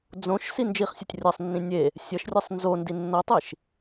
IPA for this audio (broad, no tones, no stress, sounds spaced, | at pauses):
d͡z õ ʃ s i n d͡ʒ i χ sʲ ʌ tʲ rʲ ʌ sˤ nː ĩ nʲ e | sʲ ʌ ʃ rʲ e sˤ n z o n d i nː ʌ tˤ i ʃ